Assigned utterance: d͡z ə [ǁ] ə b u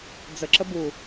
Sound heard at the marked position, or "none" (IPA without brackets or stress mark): ǁ